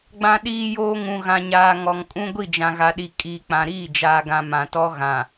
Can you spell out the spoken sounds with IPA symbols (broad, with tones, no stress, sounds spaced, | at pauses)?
ɡ͡b ã˨ ɗ iː˨ j oː˨ ŋ ũ˨ ɣ ã˨ ɲ aː˨ ŋ ɔ˨ ŋ kʼ ũ˦ ɡʷ i˦˨ d͡ʒ ã˨ ɣ a˨ ɗ i˨ kʼ iː˨ k͡p ã˨ ɾ iː˦˨ d͡ʒ aː˨ ɡ ã˨ m ã˨ t ɔ˦ ɣ ã˨